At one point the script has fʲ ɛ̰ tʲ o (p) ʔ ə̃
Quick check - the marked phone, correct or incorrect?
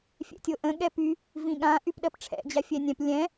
incorrect